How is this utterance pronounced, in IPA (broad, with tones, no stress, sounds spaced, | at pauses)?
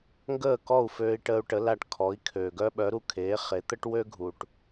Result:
ŋ ɡ əː˥˩ k ɔ˥˩ u̯ f øː˧ i̯ ʈ əː˧ u̯ ʈ ə˩˥ l a˧ ʈ kʰ ɔ˩˥ i̯ kʰ øː˩ ɡ œ˥ ɓ œ˩˥ ɾ u˥˩ kʰ eː˩˥ χ e˩˥ t̪ ə˥ ʈ w ø˥ ɡʱ u˩ ʈ